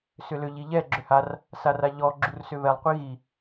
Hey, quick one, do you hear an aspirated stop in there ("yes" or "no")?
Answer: no